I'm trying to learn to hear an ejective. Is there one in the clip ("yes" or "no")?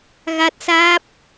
no